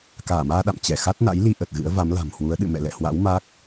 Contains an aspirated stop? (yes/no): no